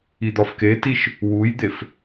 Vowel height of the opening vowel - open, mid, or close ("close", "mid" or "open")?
close